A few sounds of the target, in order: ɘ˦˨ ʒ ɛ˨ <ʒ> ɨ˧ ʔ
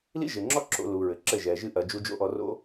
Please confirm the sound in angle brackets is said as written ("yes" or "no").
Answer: yes